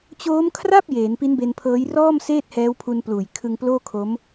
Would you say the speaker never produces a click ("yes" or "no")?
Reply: yes